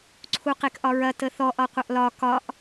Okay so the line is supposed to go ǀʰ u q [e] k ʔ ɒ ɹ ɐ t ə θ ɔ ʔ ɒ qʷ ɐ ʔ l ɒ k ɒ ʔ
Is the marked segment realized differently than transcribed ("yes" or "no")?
no